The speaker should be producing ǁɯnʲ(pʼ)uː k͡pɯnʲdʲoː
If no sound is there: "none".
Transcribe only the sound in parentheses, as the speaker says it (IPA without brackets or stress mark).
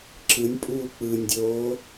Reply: pʼ